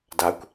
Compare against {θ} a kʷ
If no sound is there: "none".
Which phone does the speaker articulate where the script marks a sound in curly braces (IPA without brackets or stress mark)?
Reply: d